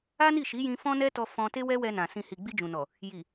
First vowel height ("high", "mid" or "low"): low